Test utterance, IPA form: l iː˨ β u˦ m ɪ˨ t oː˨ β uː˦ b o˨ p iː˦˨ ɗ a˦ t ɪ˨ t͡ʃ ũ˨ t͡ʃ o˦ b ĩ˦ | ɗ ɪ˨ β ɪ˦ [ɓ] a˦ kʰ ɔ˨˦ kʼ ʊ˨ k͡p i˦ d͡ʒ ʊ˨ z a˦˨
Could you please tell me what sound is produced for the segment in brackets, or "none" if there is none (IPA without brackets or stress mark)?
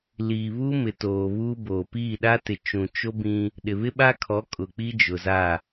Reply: ɓ